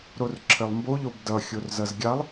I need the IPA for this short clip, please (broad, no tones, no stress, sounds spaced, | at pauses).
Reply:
ɾ o r ǁʰ ɘ lˠ m b o ʎ o b d ʌ xʲ o r z ʌ z ɡʲ a lˠ